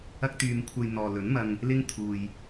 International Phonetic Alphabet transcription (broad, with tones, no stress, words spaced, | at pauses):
ɐ˥k̚t̪yː˧m kʷʰɐ˧jn̪ɔː˨lɵ˨˥nmɐ˧ŋ | lɪ˥ŋ t̪ʰuː˧j